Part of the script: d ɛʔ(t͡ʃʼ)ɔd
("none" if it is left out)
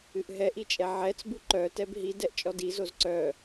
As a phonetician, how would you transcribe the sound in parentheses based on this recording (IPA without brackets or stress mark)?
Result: t͡ʃʼ